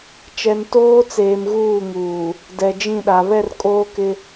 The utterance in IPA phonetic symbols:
t͡ʃ ɛ˨ n t oː˦ t͡s eː˨ m ɣ uː˦˨ ŋ uː˨ | d ɛ˨ d͡ʒ ĩ˦˨ ɗ a˨ β ɛ˦˨ r kʼ oː˦ k ɪ˦

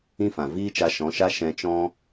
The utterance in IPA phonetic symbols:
ĩ˦ f ã˨ v iː˦ t͡ʃ a˧ ʃ ɔ̃˨˦ ʃ a˦ ʃ ɛ̃˧ t͡ʃ ɔ̃˦

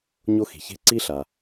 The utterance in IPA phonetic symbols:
ɲ o˦ x i̤˩ ç e̤˦ ǀ i˥ ɬ a˩

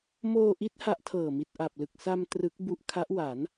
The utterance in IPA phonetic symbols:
m oː˧ ʔ i˦˥ t̚ h a˦˥ ʔ tʰ ɤː˨˩ m i˨˩ t̚ ʔ a˨˩ p̚ l ɯ˨˩ k̚ s a˧ m t r ɯ˦˥ k̚ b u˦˥ ʔ kʰ a˦˥ ʔ w a˩˦ n

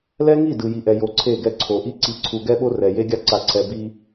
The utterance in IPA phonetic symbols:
l ɛ˦ ŋ i˦˨ d ɯ˨ j i˨ ʔ ɛ˨ j o˨˦ ǀʰ e˦˨ ɡ ɛ˦ ǀʰ o˨ ʔ i˦ ǀ i˨˦ ǀʰ u˨ ɡ ɛ˦ ɓ o˦ r ɛ˨ j e˦ ɡʲ a˦ ǀ a˨ ǀʰ ɛ˨ b i˦

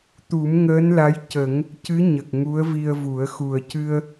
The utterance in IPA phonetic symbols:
t̪ u˨˩˦ m ŋ əː˧˥ n l a˧˥ j c ə˨˩˦ ŋ | c ɨ˧˥ ɲ ə˨˩ k̚ ŋ u˧˥ ə̯ v i˧ ə̯ v u˨˩˦ ə̯ x u˨˩ ə̯ c ɨ˧ ə̯

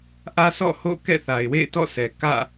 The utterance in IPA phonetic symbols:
ʔ ä˦ s ɔ̰˦˨ h o̰˦˨ k ɛ̰˦˨ θ a˨ ɪ̯ w ḛ˦˨ ɪ̯ t ɔ̰˦˨ sʰ ɛ˨ k ä̰˦˨

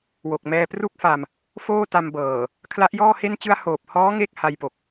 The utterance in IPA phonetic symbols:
w o˨˩ k̚ m ɛː˧ p r u˥˩ k̚ f a˧ m | f oː˥˩ t a˧ m b ɤː˨˩ | kʰ l a˦˥ ʔ j ɔː˥˩ h e˥˩ n t͡ɕ ɯ˥˩ a̯ h oː˨˩ p̚ h ɔː˦˥ ŋ e˥˩ k̚ h a˧ j p o˨˩ k̚

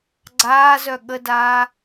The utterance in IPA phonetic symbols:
ɡ͡ǀ aː z œ ɠ ə d aː

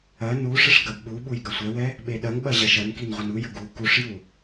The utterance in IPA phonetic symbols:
ɐ n u ʂ ə ʂ ɡ ɐ b ɓ u ɓ u j ɡ ɐ sʷ ɛ w ɛ | ɓ e ɗ ɐ ŋ ɓ ɐ ʑ ɐ ʃ ɐ n k i n ʁʷ ə n u j ə ɡ u k u ʂ j u

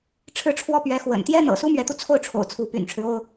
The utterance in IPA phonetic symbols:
ʈ͡ʂʰ ɻ̩˥˩ ʈ͡ʂʰ w ɔ˥ p ɥ ɛ˧˥ x w ə̰˨˩ n t̪ j ɛ˥ n̪ ɤ̰˨˩ s u˥ m ɥ ɛ˧˥ t̪ u˧ t͡sʰ o˥˩ ʊ̯ ʈ͡ʂʰ o̰˨˩ ʊ̯ t͡sʰ u˧˥ p y̰˨˩ n ʈ͡ʂʰ ɻ̩˦ o˥ ʊ̯

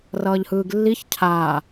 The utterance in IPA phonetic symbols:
r ʌː ʎ h ɯː ɡ lː i ç cʰ aː

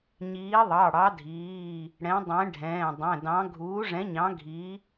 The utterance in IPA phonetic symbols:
ɲ iː˨˥ ðˤ ɑ˩˧˩ ɽ ɑ˨˥ dʱ iː˩˧˩ | ɽ ɛ̃˨˥ dˤ ɛ̃˨˥ ɖʱ ɛ̃ː˩˧˩ dˤ ɛ̃˩˧˩ d ɑ̃˨˥ ɡʱ uː˨˥ ʐ ɛ̃˨˥ ɲ ɑ̃˨˥ ɡʱ i˨˥

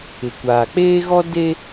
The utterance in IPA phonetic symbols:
ɪ˨ kʷ aː˨ k͡p eː˦ ɣ ɔ˦ d e˦

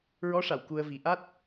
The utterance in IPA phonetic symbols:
ɹ ɔ˧˥ ʂ a˨˩˨ w k u˧ ə̯ v i˨˩˦ ʔ a˦˥ t̚

